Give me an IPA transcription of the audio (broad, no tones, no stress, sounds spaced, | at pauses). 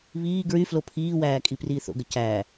β iː ɡ ɹ y f l o pʰ iː w æː kʼ i p r iː θ o̰ ɡ ə c æ